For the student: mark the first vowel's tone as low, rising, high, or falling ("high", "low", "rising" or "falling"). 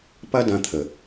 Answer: high